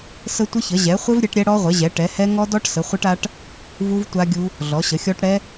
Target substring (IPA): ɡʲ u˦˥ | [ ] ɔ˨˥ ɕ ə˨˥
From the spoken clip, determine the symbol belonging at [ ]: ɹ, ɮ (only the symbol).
ɮ